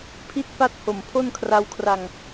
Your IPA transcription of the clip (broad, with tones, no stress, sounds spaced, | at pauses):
pʰ i˦˥ t̚ p a˦˥ t̚ h o˨˩ m pʰ o˥˩ n kʰ r a˦˥ w kʰ r a˧ ŋ